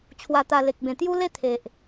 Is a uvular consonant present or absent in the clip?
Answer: absent